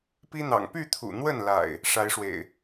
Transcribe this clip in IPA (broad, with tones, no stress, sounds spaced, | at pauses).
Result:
p i˦ n̪ ɑ̰˨˩ ŋ p y˥˨ t̪ʰ ṵ˨˩ n̪ w ə˥˨ n l a̰˨˩ ɪ̯ | ʂ a˨˦ ɪ̯ ʂ w ḛ˨˩ ɪ̯